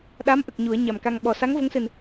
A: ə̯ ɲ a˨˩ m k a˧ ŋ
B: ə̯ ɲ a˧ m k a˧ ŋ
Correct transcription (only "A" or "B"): A